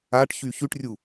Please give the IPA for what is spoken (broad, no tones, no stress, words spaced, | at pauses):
aʈçy çyʈrʲu